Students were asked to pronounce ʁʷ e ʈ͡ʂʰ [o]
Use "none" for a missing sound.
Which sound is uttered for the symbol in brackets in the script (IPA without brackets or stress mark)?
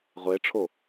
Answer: o